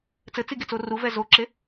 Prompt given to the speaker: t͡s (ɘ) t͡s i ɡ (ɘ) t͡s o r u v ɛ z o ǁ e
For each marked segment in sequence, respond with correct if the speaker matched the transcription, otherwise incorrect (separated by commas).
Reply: correct, incorrect